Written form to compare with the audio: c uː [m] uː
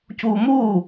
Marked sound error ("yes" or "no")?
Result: no